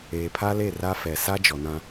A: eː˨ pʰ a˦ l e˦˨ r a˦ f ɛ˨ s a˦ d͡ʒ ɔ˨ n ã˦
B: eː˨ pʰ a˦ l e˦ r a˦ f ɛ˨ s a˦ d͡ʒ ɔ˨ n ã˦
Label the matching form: A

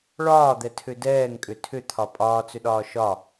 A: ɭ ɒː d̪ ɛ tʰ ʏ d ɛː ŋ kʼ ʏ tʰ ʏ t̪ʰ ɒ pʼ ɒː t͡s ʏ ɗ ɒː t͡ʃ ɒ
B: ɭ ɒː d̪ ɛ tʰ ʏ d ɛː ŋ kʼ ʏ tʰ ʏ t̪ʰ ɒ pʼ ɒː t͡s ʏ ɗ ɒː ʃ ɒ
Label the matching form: B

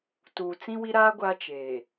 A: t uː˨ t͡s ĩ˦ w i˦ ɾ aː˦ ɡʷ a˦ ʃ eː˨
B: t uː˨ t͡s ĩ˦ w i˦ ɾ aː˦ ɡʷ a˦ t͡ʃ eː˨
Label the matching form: B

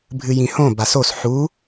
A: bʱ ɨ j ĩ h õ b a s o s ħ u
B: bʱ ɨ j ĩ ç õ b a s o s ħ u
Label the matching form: A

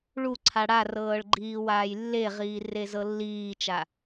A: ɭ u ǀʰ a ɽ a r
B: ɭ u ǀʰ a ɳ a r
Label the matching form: A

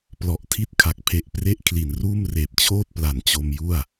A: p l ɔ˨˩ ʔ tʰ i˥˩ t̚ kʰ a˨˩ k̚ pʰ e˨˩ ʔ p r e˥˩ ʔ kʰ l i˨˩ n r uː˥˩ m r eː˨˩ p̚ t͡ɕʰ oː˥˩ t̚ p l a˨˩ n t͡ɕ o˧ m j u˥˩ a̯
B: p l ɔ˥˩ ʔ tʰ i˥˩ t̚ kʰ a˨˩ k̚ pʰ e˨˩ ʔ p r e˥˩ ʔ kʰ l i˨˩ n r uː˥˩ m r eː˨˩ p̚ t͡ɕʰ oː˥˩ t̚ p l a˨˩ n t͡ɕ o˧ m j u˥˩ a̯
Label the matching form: A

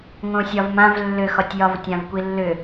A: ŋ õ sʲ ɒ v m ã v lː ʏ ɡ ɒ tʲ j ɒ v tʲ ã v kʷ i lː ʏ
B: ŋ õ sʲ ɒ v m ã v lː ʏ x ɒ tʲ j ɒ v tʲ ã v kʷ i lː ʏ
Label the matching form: B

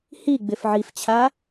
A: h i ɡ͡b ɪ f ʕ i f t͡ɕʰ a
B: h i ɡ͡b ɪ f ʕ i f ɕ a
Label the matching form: A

